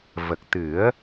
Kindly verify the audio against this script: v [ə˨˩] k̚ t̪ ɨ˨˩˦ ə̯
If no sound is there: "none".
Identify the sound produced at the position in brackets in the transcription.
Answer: ə˨˩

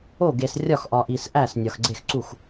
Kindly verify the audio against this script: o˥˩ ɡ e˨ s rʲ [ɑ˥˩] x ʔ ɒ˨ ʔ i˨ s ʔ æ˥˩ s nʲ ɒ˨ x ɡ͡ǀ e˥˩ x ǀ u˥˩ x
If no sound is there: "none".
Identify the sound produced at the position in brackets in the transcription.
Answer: ɒ˥˩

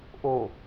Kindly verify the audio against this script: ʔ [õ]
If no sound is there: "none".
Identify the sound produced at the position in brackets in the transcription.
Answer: o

